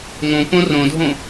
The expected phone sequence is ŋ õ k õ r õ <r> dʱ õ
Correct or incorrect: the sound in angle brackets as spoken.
incorrect: none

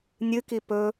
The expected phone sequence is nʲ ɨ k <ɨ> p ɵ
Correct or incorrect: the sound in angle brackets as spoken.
incorrect: i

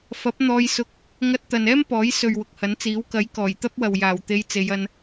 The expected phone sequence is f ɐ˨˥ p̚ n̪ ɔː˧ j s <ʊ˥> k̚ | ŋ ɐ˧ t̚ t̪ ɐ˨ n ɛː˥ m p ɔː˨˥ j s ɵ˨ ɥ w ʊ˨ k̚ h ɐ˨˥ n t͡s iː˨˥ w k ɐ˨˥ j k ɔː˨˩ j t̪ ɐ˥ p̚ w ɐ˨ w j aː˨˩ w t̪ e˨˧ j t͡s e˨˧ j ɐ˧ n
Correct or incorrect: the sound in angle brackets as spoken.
incorrect: ʊ˧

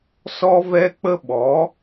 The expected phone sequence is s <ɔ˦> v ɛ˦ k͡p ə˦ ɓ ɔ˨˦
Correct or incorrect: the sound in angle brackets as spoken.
correct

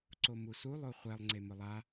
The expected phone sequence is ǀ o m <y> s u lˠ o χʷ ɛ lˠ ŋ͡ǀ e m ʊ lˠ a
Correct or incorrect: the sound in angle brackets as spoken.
incorrect: u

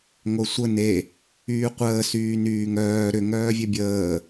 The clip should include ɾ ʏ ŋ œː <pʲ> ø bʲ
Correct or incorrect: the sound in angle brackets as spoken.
incorrect: vʲ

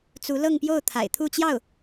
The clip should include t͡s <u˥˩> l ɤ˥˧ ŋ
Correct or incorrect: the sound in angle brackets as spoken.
incorrect: u˧˥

